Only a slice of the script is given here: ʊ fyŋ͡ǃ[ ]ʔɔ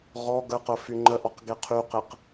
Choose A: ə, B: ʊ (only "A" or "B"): A